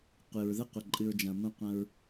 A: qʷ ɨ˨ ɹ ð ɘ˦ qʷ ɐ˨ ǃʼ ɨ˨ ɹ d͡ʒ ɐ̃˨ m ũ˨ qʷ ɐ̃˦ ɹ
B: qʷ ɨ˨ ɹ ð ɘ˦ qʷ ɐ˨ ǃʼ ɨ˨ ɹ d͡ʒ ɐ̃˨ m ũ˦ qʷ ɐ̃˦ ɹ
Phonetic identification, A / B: B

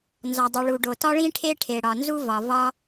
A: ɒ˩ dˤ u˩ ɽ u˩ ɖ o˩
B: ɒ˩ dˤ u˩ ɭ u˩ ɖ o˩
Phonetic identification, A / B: B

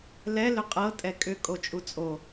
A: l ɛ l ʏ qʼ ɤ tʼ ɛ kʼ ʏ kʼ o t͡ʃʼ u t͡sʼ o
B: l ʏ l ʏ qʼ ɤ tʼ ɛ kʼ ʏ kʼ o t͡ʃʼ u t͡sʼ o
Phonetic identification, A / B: A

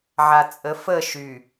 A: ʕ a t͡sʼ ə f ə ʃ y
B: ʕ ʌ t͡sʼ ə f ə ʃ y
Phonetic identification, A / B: A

